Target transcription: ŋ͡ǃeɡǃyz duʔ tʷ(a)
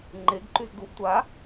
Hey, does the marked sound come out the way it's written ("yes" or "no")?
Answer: yes